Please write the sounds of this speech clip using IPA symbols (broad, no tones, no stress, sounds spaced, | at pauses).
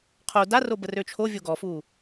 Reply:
qʰ o d a r o b ə r ø t͡ʃʰ o vʲ o ɡ ɔ f u